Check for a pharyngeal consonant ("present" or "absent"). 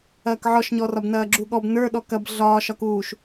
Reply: present